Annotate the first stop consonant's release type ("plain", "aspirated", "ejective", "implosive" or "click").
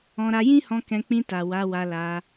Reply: plain